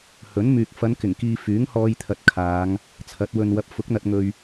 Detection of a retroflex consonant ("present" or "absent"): absent